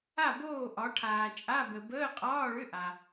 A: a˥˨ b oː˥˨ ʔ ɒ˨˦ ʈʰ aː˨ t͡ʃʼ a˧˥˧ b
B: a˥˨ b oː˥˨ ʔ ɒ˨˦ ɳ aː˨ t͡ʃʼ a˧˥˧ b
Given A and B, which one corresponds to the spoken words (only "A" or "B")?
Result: A